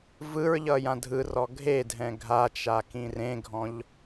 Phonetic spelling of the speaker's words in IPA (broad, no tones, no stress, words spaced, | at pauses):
vɯɹʎʌ jãdʱɯrɔ ɡʱedʱɛ̃ ɡʱat͡ʃa kĩrẽɡʱɔ̃ʎ